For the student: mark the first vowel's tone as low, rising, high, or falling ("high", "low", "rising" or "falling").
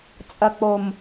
low